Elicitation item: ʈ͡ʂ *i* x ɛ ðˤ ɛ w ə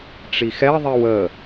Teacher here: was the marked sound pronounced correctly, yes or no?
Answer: yes